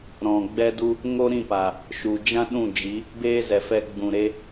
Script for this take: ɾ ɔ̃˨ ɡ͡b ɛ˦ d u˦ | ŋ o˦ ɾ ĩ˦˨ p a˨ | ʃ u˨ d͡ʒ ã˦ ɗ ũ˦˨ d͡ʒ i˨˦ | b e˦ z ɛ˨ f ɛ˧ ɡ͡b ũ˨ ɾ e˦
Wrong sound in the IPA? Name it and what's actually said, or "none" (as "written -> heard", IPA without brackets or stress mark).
none